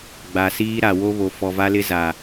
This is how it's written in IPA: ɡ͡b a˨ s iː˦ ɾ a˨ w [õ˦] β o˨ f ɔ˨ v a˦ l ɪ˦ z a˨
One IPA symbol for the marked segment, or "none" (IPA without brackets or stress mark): o˦